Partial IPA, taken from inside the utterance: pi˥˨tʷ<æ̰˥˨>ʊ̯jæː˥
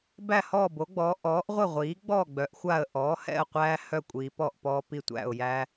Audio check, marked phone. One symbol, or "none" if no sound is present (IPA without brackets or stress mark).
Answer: æ̰˥˨